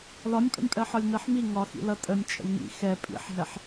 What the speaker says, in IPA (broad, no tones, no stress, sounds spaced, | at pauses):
l ɒ nʲ pʼ ə̰ nʲ pʼ ɜ ħ ɒ lʲ n ɜ ħ m i ŋ ɒ x ḭ l ʌ tʼ ə nʲ t͡ʃʼ ə̰ lʲ ŋ ḭ x ɛ pʼ ḭ ħ ɦ ɛ ħ